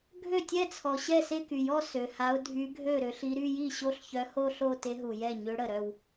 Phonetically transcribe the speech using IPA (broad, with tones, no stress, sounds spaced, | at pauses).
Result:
ɡʱ ø˥˩ tʲ ɛ˥˧ t͡sʰ ɔ˨ ɕ ɛ˥˩ s e˥˧ k y˨ j ɔ˥˧ s ø˨ h a˧˥ ʊ̯ dʱ y˧˥ ɡʱ ø˥˩ ɾ ø˧˥ ɬ i˧˥ ɾ y˥˧ j i˥˩ ɕ o˥˧ ɬ ç œ˧˥ h o˥˧ ɬ o˥˧ t e˧˥ ɦ u˨ j ɛ˥˩ ɲ ø˧˥ ɽ ə˨ ɾ œ˥˧ w